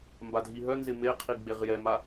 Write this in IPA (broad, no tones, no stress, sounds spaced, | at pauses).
m b a dʱ i ɦ œ n z ɪ m e qʰ i ɡ͡b e ʁ j ɛ m a